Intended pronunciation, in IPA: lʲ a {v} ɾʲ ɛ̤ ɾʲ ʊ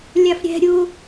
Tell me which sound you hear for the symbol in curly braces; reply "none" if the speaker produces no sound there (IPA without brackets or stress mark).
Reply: f